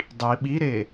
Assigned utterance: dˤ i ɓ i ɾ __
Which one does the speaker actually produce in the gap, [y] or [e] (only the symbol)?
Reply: e